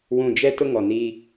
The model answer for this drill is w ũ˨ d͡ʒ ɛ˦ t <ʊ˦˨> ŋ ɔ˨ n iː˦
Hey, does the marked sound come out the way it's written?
no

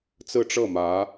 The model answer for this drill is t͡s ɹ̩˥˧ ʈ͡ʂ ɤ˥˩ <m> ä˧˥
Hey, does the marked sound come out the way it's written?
yes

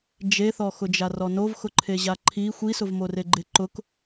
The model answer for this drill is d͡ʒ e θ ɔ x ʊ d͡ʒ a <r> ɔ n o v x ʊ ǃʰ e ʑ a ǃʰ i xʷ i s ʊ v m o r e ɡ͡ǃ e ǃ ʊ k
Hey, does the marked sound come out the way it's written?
yes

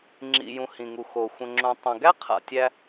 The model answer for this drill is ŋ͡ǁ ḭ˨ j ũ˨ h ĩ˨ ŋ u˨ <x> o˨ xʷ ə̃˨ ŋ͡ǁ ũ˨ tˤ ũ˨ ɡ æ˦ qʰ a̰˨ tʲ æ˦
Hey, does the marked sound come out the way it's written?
yes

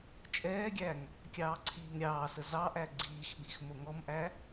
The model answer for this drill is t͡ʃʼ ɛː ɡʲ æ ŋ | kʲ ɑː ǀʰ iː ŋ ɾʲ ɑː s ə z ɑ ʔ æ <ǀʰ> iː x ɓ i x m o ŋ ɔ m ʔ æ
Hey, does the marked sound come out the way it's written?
no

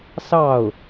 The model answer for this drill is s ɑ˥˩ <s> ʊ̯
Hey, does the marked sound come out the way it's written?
no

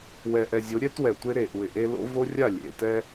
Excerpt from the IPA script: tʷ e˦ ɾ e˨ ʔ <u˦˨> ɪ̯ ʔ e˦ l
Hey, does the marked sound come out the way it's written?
no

